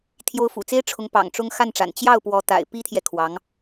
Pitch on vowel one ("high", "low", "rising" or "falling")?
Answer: rising